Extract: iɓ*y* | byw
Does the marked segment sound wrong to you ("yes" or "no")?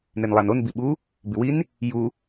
yes